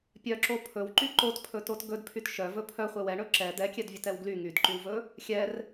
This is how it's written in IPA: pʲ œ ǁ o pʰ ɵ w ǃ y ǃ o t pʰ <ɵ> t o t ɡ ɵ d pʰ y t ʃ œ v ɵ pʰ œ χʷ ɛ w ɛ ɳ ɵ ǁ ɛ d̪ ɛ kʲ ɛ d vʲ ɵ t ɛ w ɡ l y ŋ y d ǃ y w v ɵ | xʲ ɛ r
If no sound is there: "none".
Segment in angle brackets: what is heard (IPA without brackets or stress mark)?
ɵ